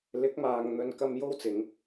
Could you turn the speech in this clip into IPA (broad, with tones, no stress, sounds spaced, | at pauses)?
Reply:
l ɪ˨˥ k̚ m aː˨ ŋ n̪ ɵ˨ n k ɐ˥ m j o˥ w t͡s ɪ˨˧ ŋ